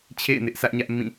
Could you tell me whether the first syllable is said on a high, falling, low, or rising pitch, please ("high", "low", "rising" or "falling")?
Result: falling